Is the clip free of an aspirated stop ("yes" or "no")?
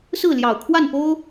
no